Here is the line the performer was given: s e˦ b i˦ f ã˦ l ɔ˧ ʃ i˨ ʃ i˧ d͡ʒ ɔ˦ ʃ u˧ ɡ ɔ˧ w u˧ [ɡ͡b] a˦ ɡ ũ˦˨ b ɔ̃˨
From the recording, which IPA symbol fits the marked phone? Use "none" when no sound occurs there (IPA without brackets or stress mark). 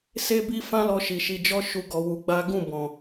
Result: ɡ͡b